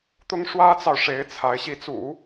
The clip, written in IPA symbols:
t̪ ʊ˥ ŋ ʂ w ä˥ t͡s ɑ˨ ʊ̯ ʂ e˧˥ ɪ̯ t͡sʰ a˧˥ ɪ̯ ɕ i˧˥ t͡s ṵ˨˩˦

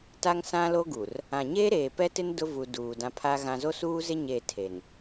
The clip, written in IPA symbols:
t a˦ ŋ s ã˦ l o˦ ɡ u˨ r | ã˨ ɲ eː˦ ɾ eː˨ p ɛ˦ t ɪ˦ n d ʊ˦ v u˨ d uː˨ d ã˦ pʰ a˦ ɣ ã˨ z o˦ s uː˦ z ɪ˦ ɲ e˦˨ tʰ e˨ n

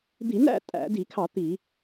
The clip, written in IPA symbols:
d̪ i˧˩˧ n æ̰˥˨ tʼ æ̰˧˩˧ d i˧˩˧ kʰ ɑ˧˩˧ t̪ i˧˩˧

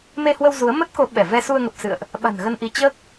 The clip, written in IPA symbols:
m e˧ h w ə˧ w z u˨˦ ə̯ m ə˦˥ t̚ k o˨˦ ɓ ɛ˧˩ v ɛ˧ s u˧ ə̯ ŋ ə˨˩ p̚ s ɨ̰˧˨ ə̯ ʔ | ɓ a̤˨˩ n ɣ ə˧ n ʔ i˧ t͡ɕ əː˦˥ k̚

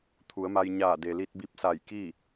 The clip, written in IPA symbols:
t̪ʰ u˩˧ ə̯ m a˧ j ɲ aː˧˩ d e˩ l i˧ t̚ b i˧˥ p̚ s a˧˩ j k i˥˨

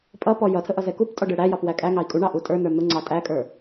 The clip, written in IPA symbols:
pʼ ʌ p ɔ j ʌ tʰ ə ʔ ʌ z ɛ k u p tʼ ɔ ɖ ɛ ɽ æ j ɑ p w æ kʼ æ ŋ ɑ i̯ kʼ u ɳ ɑ ʔ u tʼ ə˞ n ə˞ n̪ ʊ ŋ͡ǀ ɑ tʼ æ kʼ ə˞

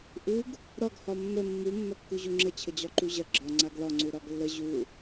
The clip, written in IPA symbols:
ʔ u ɡ | ɾ ɒ ɡ h ɒ mː ə mː u mː ɐ kː u ʑ u ŋ͡ǁ ə t͡ɕʰ ə d͡ʑ ɒ ǃ u ʑ ɐ ɡ͡ǁ ɒ ŋ͡ǀ a ɡ l ɒ ŋ͡ǀ u ɾ ɒ ɡ lː ə ʑ u

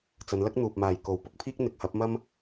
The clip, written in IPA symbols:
t͡s ɐ˨˧ n l ɐ˥ k̚ n̪ uː˨ p̚ m aː˨ j k o˨˥ w p ʊ˨˥ k̚ pʰ iː˥ k̚ n̪ ɪ˨˥ k̚ h ɐ˨˥ p̚ m ɐ˥ m

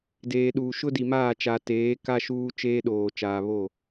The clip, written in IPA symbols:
d eː˨ ɗ uː˨ ʃ ʊ˦ d i˨ m aː˦˨ t͡ʃ a˨ t eː˨˦ k a˦ ʃ uː˦ t͡ʃ eː˦ ɗ oː˨ t͡ʃ aː˨ β o˦˨

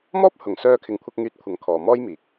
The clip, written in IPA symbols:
m ɔː˥ p̚ h ʊ˨˩ ŋ s œː˧ kʰ ɪ˨ ŋ kʷʰ ɐ˧ k̚ ŋ yː˨˥ t̚ kʷʰ ɐ˨ ŋ kʰ ɔː˨ m ɔː˥ j m iː˨ k̚

